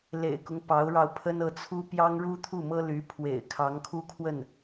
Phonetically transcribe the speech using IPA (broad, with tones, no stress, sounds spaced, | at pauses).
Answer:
l ḛ˨˩ ɪ̯ k ʊ˦ ŋ p ɑ˧˥ ʊ̯ ɻ ɑ˧ ʊ̯ pʰ ə˥ n ɤ˧˥ t͡sʰ u˥ p j ɑ˥ ŋ ɻ u˥ t̪ʰ u˥˩ m ɤ˥ l y˧˥ pʰ w ḛ˨˩ ɪ̯ kʰ ɑ˧˥ ŋ kʰ u˥ kʰ w ə˥˩ n